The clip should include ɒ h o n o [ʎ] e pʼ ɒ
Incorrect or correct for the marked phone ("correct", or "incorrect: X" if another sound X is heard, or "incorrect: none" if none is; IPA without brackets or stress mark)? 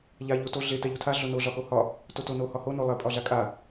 incorrect: lˠ